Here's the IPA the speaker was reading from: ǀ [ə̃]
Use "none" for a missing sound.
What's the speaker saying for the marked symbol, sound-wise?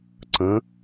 ə̃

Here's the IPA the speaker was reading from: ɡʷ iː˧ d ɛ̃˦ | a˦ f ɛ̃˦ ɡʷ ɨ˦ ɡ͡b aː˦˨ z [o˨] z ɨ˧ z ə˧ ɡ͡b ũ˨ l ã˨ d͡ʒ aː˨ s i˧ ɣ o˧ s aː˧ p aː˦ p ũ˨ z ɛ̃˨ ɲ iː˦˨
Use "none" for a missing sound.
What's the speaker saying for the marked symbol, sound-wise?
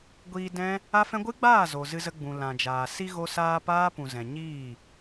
o˨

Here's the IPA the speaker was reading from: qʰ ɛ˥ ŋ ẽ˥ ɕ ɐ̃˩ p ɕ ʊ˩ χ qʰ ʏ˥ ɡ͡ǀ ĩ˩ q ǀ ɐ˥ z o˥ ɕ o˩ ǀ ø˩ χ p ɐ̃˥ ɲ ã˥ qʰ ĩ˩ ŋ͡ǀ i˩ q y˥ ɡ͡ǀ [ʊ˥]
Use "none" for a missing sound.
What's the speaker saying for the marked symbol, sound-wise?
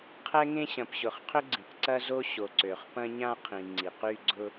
ʊ˥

